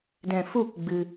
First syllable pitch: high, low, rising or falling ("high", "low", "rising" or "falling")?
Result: low